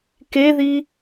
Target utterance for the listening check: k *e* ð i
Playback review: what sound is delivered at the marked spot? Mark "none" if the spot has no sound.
e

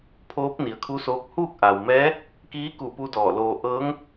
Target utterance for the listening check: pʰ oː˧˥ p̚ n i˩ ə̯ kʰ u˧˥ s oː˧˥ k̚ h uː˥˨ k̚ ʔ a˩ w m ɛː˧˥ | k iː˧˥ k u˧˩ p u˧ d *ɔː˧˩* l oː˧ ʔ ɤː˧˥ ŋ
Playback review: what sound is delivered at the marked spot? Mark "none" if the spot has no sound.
ɔː˧˩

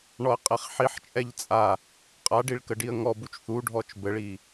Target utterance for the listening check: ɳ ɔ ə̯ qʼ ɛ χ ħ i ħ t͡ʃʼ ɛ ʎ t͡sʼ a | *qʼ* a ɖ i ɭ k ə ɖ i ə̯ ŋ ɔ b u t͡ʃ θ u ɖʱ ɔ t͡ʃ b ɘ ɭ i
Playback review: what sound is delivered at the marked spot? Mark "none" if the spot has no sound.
qʼ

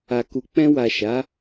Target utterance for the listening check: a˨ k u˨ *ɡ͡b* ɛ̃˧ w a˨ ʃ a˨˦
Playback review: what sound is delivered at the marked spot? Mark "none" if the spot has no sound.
k͡p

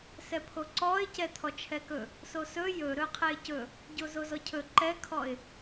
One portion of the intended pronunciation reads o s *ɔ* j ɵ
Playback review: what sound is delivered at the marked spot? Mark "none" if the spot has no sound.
ɵ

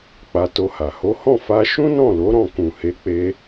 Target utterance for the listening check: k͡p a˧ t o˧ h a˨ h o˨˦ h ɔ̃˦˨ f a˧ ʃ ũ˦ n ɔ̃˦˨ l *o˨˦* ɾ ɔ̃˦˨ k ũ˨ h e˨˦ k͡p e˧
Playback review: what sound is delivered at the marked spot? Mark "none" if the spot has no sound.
o˨˦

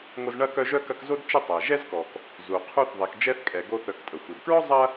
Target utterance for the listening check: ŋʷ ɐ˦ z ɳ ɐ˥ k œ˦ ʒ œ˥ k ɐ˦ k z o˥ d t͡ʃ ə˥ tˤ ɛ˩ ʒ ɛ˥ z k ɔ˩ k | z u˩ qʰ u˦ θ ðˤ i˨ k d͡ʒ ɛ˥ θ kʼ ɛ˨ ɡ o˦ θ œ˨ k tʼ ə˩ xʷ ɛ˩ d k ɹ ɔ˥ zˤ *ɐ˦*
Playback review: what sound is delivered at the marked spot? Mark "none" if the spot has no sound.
ɐ˦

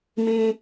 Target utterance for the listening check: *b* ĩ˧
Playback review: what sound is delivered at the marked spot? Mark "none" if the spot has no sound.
m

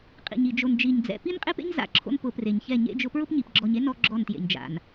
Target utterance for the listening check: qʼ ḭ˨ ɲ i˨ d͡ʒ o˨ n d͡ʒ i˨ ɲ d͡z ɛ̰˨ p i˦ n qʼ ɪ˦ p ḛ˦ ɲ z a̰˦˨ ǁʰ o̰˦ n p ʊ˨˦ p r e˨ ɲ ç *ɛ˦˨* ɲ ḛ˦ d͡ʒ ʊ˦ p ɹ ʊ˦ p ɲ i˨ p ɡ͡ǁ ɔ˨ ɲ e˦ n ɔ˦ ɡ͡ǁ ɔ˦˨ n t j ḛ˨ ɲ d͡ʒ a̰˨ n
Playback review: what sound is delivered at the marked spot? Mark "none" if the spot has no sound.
ɛ˦˨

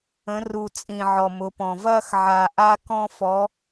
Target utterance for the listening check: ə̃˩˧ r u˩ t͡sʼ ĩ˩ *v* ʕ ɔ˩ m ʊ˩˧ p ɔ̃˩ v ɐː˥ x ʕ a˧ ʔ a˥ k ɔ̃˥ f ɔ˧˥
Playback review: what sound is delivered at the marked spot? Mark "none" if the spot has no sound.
none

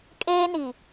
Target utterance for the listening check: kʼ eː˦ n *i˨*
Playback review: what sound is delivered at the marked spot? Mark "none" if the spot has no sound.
i˨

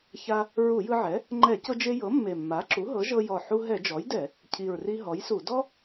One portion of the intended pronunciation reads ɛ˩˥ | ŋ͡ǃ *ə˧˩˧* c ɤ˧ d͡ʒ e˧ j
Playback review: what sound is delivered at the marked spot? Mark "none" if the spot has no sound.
ɛ˧˩˧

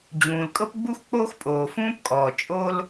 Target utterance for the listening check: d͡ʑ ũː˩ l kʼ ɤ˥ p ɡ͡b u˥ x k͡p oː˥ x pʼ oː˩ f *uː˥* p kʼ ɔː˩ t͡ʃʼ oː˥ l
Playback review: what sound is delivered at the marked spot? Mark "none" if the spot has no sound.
ũː˥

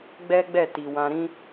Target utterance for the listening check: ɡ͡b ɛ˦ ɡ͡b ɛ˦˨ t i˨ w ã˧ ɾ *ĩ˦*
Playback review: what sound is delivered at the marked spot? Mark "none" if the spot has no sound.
ĩ˦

